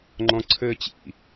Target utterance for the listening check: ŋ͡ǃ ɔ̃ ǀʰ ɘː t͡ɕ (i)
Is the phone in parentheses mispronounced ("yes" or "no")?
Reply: yes